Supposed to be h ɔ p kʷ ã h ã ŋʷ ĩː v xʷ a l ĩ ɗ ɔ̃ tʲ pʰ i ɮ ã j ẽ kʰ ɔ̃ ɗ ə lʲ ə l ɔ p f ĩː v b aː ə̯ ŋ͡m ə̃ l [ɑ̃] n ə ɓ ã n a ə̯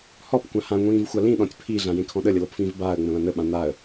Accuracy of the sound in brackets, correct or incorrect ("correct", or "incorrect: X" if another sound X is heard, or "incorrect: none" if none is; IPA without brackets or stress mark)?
incorrect: ã